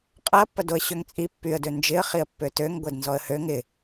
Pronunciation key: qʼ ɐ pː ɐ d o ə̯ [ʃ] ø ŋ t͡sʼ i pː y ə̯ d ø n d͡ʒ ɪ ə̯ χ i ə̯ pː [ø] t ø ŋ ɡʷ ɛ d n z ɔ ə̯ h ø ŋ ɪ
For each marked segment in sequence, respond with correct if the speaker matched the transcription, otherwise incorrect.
incorrect, correct

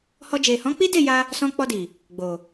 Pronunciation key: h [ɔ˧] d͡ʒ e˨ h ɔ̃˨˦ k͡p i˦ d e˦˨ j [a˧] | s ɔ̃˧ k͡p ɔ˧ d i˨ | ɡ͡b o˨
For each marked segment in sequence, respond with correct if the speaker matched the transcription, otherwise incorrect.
correct, correct

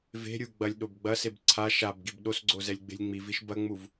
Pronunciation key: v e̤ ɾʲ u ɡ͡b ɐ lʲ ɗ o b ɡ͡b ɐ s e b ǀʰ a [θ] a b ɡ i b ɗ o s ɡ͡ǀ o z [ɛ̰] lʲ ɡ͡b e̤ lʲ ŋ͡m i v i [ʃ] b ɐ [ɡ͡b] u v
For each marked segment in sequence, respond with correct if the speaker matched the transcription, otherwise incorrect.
incorrect, incorrect, correct, incorrect

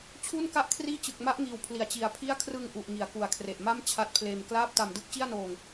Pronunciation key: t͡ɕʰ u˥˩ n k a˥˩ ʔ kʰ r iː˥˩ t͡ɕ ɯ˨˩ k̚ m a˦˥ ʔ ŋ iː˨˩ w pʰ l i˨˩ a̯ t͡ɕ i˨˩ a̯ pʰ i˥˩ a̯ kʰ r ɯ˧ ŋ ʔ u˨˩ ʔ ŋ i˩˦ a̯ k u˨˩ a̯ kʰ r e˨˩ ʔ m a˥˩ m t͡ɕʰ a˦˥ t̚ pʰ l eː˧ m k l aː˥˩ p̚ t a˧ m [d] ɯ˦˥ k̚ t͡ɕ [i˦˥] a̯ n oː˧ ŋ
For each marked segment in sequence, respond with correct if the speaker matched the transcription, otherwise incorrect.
correct, incorrect

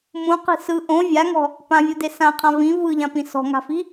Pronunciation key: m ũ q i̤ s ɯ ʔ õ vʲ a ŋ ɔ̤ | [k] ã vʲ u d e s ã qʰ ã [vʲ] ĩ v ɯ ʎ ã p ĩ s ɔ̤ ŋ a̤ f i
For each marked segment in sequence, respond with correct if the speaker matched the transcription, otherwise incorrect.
incorrect, incorrect

